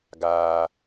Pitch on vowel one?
low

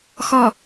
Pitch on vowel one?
low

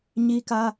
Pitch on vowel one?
high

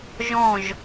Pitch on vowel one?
falling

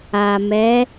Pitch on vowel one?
low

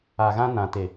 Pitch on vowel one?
low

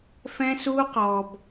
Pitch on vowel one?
high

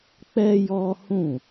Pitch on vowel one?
high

